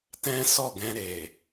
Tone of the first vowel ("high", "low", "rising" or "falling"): high